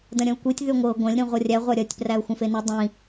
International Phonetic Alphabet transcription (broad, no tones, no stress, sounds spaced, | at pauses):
d ɐ̃ ɾʲ ɐ̃ ʊ̯ kʷ i tʲ ð y ŋʷ ɤ ɡʷ ɐ̃ lʲ ɾ ĩ ʁʷ ɤ rʲ æ ʁʷ a ɾʲ ɐ tʲ p r æ ʊ̯ xʷ ə̃ f e n i dˤ ĩ